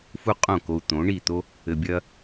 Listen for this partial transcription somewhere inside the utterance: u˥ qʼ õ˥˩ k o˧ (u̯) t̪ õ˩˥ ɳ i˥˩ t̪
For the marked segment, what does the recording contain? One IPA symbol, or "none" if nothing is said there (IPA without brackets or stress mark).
u̯